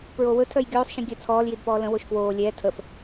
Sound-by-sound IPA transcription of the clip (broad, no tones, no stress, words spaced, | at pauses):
pɹowɵ tʰœjɡʲoːsˤ ʃĩɡʲœt͡sʰɔːl jidpɔːlə̃ woʃkwoː lʲɛː tʰəf